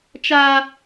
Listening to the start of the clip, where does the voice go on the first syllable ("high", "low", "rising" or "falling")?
high